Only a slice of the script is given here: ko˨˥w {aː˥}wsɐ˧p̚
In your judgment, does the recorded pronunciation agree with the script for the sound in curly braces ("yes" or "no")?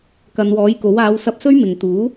no